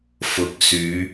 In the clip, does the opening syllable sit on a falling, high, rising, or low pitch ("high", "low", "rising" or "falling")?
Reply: rising